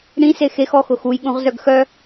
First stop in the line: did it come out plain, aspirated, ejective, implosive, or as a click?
implosive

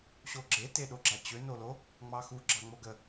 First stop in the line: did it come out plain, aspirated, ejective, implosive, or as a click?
click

